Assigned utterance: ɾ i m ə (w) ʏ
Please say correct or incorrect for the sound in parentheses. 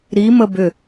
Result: incorrect